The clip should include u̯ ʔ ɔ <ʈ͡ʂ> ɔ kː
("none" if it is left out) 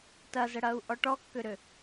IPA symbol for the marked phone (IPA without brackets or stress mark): ʈ